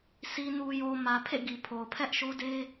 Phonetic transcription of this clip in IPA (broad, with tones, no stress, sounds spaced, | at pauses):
sʰ i˨ n u˨ j o˨ m ä˨ pʰ ḛ˦˨ ɡ i˨ pʰ o˨ ʊ̯ pʰ ɛ˦ ʔ ʃ o˦ d e˦